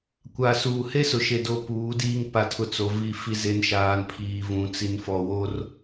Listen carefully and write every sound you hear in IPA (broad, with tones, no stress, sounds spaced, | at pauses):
kʷ a˨ s uː˨ h e˦ s ʊ˨ ʃ e˦ d o˦ p uː˨˦ d iː˦ ŋ p a˦ tʰ ʊ˦ t͡s o˨ v i˦˨ f i˦ z e˦ n ʃ aː˨ n pʰ iː˨ v ũ˨ t͡s i˨ n f ɔ˨ w o˦ r